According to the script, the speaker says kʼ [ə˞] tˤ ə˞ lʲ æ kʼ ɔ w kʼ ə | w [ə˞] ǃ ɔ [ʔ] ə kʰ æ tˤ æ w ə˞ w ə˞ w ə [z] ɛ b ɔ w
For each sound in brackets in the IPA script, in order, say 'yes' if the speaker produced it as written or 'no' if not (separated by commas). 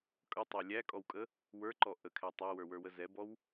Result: no, yes, yes, yes